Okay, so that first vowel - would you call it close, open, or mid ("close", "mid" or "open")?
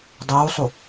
close